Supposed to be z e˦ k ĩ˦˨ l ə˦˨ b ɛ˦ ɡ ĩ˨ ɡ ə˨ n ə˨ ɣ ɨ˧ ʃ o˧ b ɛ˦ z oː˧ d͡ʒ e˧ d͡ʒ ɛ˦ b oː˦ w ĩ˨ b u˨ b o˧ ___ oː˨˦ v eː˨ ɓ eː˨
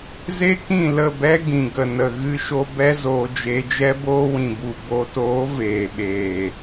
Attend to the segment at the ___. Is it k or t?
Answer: t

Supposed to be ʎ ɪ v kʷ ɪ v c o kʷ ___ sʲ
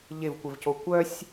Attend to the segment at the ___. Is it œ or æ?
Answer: œ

